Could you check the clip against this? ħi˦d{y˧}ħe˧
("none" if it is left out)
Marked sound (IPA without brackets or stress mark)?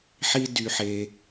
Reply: y˧